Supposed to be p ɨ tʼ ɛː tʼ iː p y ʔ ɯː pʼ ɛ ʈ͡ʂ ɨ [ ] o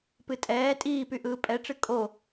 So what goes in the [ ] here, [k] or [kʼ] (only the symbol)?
kʼ